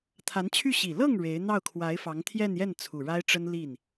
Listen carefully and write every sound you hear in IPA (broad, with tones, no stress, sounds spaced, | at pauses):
t̪ʰ a˧˥ n t͡ɕʰ y˥˩ ɕ i˨˩ l ɤ˥˩ ŋ ɻ e˧˥ ɪ̯ n̪ ɑ˥˩ ʊ̯ kʰ w a˧˥ ɪ̯ f ɑ˧˥ ŋ t̪ʰ j ɛ˥˧ n j ɛ˥˩ n t͡sʰ u˨˩ ɻ a˥ ɪ̯ ʈ͡ʂ ə˥ n l i˥˩ n